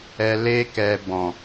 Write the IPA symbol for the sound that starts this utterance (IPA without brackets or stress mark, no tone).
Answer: ɛ